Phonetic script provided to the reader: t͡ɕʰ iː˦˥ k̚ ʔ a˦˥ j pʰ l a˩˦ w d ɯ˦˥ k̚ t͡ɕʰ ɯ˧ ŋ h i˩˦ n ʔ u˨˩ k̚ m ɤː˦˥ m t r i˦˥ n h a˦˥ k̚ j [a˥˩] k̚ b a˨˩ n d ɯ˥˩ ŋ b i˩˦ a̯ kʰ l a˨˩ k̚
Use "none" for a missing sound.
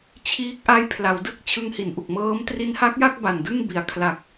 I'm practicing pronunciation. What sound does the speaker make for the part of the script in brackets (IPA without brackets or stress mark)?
a˥˩